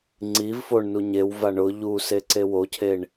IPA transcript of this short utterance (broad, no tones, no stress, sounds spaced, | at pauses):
ŋ͡ǀ i v f o ɳ n u ɲ e w v a ɳ ʊ ʎ u s e ǀ e w o cʰ e ɳ